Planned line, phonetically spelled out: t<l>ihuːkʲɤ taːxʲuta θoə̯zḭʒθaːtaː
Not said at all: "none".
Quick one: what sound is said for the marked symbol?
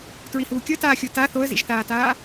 ɹ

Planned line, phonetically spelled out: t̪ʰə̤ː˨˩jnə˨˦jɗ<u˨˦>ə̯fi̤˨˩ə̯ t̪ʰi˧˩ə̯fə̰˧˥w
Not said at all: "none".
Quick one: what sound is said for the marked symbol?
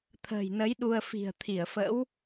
u˧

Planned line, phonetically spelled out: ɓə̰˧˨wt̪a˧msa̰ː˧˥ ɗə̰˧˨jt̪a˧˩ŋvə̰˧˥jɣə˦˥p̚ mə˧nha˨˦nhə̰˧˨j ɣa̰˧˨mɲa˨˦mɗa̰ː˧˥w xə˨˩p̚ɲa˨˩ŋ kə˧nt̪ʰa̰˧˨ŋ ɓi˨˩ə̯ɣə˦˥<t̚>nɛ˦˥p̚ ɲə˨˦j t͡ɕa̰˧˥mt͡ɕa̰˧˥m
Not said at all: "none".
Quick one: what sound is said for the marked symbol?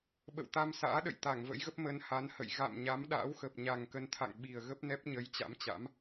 p̚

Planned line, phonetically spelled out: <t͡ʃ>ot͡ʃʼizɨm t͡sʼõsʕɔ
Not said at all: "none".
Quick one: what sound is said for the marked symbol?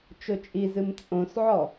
t͡ʃ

